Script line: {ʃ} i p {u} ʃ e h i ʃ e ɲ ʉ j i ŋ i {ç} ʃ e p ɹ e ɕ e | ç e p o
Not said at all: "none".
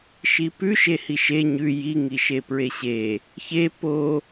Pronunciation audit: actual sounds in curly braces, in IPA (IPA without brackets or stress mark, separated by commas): ʃ, ʉ, none